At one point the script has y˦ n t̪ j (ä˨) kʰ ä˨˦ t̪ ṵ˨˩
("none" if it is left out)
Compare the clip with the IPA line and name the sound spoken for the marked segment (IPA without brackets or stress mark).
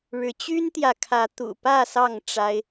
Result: ä˨